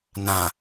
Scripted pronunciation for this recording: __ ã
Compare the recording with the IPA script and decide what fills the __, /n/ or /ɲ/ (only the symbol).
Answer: n